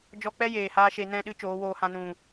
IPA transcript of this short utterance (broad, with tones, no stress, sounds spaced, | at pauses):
d͡ʒ ɔ˦ k͡p ɛ˦ j eː˨ h aː˧ ʃ e˧ n ɛ̃˦˨ ɗ ɨ˦ t͡ʃ oː˨˦ w oː˧ h ã˧ n ũ˨